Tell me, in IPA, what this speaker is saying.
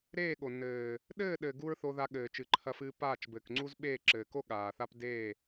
ɾ eː˦˨ ɠ o˨ n ɘː˨ | ɗ ɘː˦˨ ɗ ɘː˨ ɡ u˦ ɹ θ o˧ ð a˧ ɠ ɘː˨ t͡ʃ ɨ˨ ǃʰ ɐ˧ f ɨː˧ p aː˦˨ t͡ʃ b ɘː˨ k ŋ͡ǀ u˦ z ɓ eː˦˨ ǁ ɘː˨ k o˦ ɠ aː˨ θ a˦ p d eː˦˨

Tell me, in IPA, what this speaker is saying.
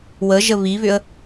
w ə ʒ ə β i β ʏ ə̯

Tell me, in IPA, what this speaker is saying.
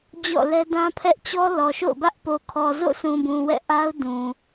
d͡ʑ ɔ̰˦˨ l ɛ˦ d ã˦ pʰ ɛ˦ ʔ t͡ɕ ɔ˦ l ɔ˨ ʃ o̰˦˨ ʊ̯ b ä˦ ʔ p o˨ kʰ ɔ˨ z o̰˦˨ sʰ ũ˨ b ũ˨ w ɛ̰˦˨ ʔ a˦ ʊ̯ d ũ˨

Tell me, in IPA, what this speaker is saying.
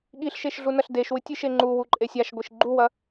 ɠ i ɬ ʃ e ʃ ɮ u n ɐ ɬ d e ʃ w ɨ tʲ ɨ ʃ e ŋ͡ǃ u w u ǃʼ e sʲ a ʃ ɡʷ i ʃ ɡ͡ǃ u w ɐ

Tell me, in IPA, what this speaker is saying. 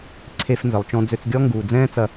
ǀʰ e˧ f n z ə˨ lˠ t͡ʃ ɔ̃˧ d͡z ø˧ t͡s ɡʲ ɔ˦ ŋ ɡ uː˨ d͡z ɛ̃ː˦ t͡s ɐ˧

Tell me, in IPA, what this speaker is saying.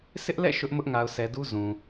s ɪ˦ ʔ l ɛ̰˦˨ ʃ ʊ˦ ʔ m ʊ˦ ʔ ŋ a˨ ʊ̯ sʰ ɛ˨ d u˦ z ũ˨

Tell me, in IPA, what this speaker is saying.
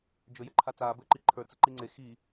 d͡ʒ ɵ j ɘ ǃʰ a t͡s aː b ɘː ǃ i ǃʰ ə˞ t͡s ə ǃ i ŋ͡ǀ e x i

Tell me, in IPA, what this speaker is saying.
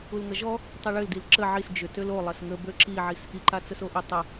u l ŋ ɐ ʒ ɔ | tˤ i ɭ ʏ l d i l ǁ ə ʕ i s d͡ʒ ʏ t ø l o lˠ ɐ s ŋ ə b ø ǁ i ʕ i s ʔ i ǃ a t͡s ə s o ʔ ʏ tˤ ə

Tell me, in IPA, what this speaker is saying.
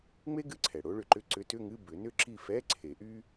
ŋ͡m e˥ ɡ ɨ˧˥˧ ǀʰ ɛ˩ ɽ o˧˥ ɭ ʏ˨˩˦ ǃ ʏ˧˥˧ ǀ ʏ˧˥ t ʏ˧˥˧ ŋ ɨ˧˥˧ b ʏ˨˩˦ n ʏ˥ ǁ i˦˨ f ɛ˧˥˧ ǀʰ e˨˩˦ ʔ y˥

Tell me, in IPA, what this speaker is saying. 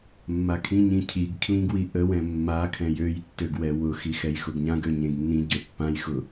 mː a kʰ ĩ ɲ ĩ cʰ i ɡ kʰ l ĩ ɡ w i ʔ ə w ɛ̃ mː a kʰ ɛ̃ j ø j tː ø ɡ w ɛ w ʊ x i x ɛ j x ʊ ɡ ɲ ã ɡ ø ɲ ẽ ɡ nː ĩ ɟ ø pː ã j x ʊ

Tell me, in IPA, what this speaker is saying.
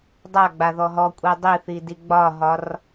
dˤ a ɡ͡b a ð ɔ ɦ ɔ kʷʼ i dˤ i θ i d i ɡ͡b ɒ ɦ ɒ r

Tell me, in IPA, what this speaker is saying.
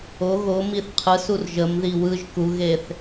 o ɣ o m i θ qʰ ɯ s u r ʒ ə m ð i w ɯ ʒ k u ɣ e θ

